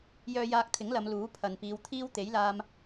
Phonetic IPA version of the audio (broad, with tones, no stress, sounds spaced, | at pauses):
j œː˧ j aː˧ k̚ t̪ʰ ɪ˨˥ ŋ l ɐ˨˧ m l uː˨˥ pʰ ɐ˨ n p iː˨˧ w t̪ʰ iː˥ w t̪ e˨˥ j l aː˧ m